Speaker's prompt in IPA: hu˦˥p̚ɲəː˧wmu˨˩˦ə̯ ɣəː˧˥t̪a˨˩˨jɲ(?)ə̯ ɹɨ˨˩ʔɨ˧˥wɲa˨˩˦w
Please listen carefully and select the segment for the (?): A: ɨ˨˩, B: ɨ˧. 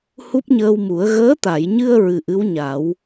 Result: B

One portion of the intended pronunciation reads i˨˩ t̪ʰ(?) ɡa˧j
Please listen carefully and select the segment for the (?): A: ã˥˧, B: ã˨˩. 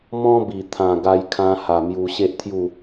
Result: B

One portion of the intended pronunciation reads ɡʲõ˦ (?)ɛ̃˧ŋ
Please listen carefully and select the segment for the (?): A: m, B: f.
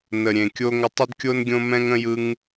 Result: A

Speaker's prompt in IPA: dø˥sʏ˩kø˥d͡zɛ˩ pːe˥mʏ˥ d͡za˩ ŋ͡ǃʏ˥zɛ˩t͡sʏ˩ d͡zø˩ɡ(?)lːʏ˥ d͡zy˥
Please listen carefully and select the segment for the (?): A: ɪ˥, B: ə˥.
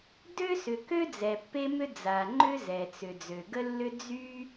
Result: B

